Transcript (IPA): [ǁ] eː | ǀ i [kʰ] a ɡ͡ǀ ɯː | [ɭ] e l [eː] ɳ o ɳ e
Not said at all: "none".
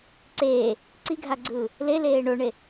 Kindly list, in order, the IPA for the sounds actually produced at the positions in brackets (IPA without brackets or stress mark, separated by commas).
ǀ, ɡʱ, l, eː